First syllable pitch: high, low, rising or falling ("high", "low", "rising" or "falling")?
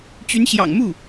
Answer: rising